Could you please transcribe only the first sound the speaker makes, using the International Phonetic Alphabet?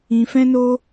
ĩ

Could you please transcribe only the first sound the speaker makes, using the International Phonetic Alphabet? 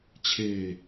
t͡ɕʰ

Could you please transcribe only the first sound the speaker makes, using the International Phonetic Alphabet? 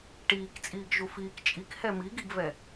ʈ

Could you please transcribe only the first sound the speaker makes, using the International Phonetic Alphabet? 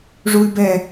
ʐ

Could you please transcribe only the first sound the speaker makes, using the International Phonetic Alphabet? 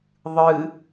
ðˤ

